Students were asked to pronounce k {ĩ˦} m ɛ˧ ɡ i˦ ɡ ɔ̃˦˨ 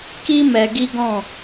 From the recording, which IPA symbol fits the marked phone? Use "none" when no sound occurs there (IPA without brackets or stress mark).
i˦